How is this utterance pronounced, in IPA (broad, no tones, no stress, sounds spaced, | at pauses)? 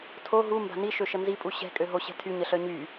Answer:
tʰ o ɦ u m b a̤ n i ʃ ø ʃ ə n z i pʼ u ɕ ɛ̤ kʼ ø ɦ o ɕ ɛ̤ tʰ y ɲ ə ɬ œ ɲ y